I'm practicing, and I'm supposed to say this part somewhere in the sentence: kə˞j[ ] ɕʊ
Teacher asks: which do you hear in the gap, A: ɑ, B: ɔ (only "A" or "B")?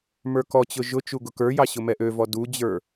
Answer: A